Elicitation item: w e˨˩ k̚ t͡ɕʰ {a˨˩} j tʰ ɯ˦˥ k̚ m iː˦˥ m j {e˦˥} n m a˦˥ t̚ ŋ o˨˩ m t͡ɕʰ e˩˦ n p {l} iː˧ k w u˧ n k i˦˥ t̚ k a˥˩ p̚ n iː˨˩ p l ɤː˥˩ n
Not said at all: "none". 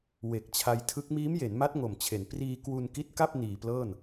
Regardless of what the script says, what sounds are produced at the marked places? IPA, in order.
a˧, e˩˦, r

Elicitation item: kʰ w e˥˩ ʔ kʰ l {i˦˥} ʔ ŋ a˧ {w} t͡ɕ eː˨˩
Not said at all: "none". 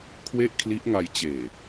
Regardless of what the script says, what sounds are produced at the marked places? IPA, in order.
i˦˥, j

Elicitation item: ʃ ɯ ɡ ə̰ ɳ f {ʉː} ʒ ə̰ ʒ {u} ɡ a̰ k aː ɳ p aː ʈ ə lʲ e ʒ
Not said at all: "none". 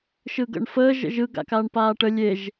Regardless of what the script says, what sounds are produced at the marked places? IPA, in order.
əː, ɯ

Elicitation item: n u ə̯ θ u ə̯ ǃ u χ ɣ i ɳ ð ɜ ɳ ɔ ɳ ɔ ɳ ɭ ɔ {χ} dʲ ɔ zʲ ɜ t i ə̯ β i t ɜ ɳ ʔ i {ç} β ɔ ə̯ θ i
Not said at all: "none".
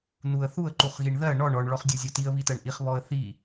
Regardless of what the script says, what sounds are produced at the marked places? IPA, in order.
χ, χ

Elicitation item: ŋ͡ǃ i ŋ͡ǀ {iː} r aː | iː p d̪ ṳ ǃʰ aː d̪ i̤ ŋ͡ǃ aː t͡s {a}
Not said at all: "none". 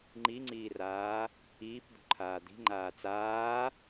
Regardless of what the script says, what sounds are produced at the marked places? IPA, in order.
iː, aː

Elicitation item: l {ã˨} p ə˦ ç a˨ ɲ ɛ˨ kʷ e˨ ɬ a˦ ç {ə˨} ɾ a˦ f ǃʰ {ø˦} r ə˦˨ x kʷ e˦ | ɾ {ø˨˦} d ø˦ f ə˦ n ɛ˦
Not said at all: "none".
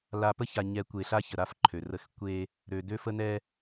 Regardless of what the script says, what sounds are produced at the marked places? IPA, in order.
a˨, ə˨, ø˨, ø˨

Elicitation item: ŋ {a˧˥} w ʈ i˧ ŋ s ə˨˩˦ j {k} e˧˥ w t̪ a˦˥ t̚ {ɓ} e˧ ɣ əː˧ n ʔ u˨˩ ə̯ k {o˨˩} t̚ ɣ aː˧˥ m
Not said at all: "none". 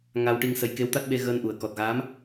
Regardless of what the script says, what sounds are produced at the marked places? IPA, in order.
a˧, k, ɓ, ɔ˨˩

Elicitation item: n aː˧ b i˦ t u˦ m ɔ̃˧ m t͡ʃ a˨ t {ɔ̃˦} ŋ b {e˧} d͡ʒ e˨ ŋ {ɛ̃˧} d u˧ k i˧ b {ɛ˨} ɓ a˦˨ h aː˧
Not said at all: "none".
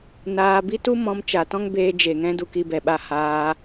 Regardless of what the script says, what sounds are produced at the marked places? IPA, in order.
ɔ̃˦, eː˧, ɛ̃˧, ɛ˨

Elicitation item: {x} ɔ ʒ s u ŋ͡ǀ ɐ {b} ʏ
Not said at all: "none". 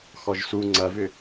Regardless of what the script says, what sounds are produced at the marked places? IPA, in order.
x, v

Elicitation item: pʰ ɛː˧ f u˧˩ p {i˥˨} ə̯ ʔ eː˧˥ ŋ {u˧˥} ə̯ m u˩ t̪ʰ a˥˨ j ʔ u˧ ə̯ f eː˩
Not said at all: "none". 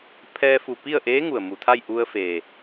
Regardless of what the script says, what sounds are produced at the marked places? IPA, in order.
i˥˨, u˩

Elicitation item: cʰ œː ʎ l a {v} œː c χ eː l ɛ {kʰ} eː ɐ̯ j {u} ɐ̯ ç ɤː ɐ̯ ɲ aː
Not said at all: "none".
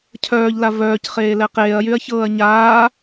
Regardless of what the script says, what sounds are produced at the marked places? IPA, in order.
v, q, y

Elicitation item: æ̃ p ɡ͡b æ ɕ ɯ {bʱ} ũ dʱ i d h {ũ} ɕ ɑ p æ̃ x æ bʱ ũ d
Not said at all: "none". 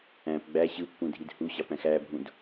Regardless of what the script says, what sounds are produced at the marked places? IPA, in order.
pː, u

